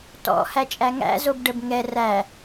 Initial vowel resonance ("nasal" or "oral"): oral